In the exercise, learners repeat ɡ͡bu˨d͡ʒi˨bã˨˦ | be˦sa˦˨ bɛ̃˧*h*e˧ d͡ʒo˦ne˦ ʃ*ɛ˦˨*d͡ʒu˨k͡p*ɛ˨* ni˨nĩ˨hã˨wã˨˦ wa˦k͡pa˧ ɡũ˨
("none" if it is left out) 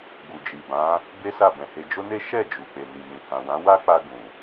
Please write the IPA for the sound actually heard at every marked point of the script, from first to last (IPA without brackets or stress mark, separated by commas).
h, ɛ˦˨, e˨